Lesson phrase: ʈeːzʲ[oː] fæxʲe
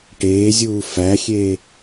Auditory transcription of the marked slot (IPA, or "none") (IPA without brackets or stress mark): uː